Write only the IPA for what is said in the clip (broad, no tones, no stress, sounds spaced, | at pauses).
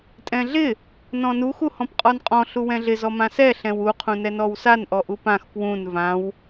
tʼ ɛ̃ ɮ ɪ | n ɔ̃ n u x u h ɔ̃ p qʼ ɔ n qʼ ɔ̃ ɬ u w ɛ̃ ɮ ɪ z ɔ m ã s ɛ ɬ ɛ̃ w u qʰ ũ n ɛ n ɔ w s a n ʔ ɔ ʔ u p ã x p w ũ n v ã w